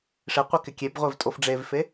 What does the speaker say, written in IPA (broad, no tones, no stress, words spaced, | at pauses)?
ʂɪ qʷekɪkʲebʁʷev tʼofɖ͡ʐevfe